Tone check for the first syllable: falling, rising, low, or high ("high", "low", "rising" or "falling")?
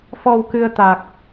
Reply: low